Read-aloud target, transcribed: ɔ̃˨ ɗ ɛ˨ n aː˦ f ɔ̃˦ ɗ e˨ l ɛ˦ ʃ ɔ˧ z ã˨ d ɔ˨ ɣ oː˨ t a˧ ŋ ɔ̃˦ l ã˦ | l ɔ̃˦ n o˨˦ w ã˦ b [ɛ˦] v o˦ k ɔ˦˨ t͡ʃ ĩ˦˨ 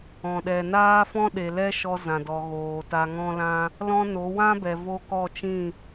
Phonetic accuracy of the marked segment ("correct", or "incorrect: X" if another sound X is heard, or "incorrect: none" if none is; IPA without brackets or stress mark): incorrect: ɛ˨